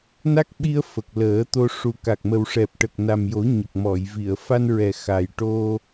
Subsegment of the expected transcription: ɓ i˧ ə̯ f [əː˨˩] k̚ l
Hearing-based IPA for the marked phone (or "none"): ə˨˩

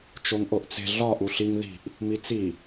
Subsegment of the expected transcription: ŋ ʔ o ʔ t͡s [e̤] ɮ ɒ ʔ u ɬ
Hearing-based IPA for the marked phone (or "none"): e̤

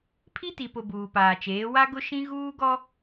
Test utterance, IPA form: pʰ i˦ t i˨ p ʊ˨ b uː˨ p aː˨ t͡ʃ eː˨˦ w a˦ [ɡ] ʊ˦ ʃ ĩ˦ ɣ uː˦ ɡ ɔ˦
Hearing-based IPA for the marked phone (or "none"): ɡ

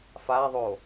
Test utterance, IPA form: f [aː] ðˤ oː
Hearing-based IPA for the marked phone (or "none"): aː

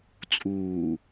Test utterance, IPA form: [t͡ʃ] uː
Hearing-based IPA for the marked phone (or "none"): t͡sʼ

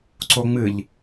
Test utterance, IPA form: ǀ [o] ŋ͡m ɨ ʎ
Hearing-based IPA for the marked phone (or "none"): o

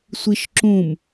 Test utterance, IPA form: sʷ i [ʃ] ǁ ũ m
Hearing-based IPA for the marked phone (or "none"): ʃ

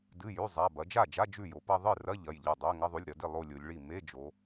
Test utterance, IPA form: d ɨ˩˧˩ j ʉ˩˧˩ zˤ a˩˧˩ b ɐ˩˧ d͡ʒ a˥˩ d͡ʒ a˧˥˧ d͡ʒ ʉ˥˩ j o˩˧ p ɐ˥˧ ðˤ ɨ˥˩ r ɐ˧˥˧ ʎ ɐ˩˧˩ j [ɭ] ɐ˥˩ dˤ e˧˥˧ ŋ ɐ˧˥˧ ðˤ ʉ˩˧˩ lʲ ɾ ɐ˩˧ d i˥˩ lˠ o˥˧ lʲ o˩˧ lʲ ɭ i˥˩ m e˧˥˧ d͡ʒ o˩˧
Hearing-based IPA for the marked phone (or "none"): ʎ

